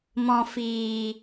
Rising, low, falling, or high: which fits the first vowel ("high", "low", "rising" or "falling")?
low